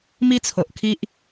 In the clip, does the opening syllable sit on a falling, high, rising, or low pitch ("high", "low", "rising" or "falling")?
high